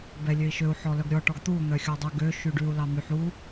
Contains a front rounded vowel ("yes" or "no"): yes